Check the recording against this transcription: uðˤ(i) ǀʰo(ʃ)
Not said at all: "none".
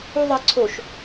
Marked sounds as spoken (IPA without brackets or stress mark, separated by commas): i, ʃ